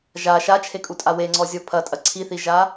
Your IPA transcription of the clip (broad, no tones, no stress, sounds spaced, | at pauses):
ʒ a ʃ a t͡ʃʰ e kʼ u tʼ a w e ŋ͡ǀ ɔ zʲ ɔ pʰ ɐ tʼ ɐ ǀʰ i θ i ʒ a